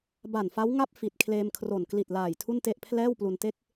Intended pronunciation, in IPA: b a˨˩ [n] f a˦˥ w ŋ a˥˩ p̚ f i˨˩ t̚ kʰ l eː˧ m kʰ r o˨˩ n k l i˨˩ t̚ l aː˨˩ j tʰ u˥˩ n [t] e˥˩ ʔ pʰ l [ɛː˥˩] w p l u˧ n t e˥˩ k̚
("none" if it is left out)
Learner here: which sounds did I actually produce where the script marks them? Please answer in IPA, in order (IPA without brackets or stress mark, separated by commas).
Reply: n, t, ɛː˥˩